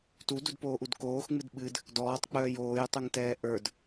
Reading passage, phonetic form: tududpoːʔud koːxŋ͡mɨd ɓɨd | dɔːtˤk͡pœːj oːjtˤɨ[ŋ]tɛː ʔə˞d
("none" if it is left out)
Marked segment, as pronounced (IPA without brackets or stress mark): ŋ